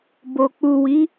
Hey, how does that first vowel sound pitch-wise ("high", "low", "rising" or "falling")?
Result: low